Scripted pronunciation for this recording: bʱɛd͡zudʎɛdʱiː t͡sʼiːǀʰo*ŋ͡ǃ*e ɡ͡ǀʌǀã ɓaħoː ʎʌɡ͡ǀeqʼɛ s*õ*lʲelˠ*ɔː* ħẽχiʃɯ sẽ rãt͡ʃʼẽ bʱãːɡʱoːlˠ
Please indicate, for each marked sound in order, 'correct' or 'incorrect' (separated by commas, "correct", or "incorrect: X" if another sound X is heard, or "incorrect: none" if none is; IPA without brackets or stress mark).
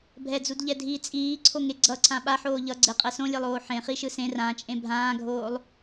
incorrect: ŋ, correct, incorrect: oː